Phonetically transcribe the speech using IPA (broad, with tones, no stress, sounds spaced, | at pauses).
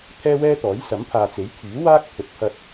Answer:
t̪ʰ ɛː˥ w ɛː˥ t̪ ɔː˨˥ j s ɐ˨˥ m pʰ aː˨ t͡s e˨˥ j kʰ yː˨˥ w aː˥ k̚ pʰ ɵ˨ t̚ pʰ ɐ˧ t̚